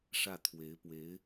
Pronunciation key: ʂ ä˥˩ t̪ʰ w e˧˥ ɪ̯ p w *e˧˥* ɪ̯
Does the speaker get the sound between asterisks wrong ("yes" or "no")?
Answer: no